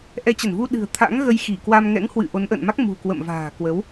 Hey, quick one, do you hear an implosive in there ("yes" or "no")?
yes